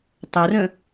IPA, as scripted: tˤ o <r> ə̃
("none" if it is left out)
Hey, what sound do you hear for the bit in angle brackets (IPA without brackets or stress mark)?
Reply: r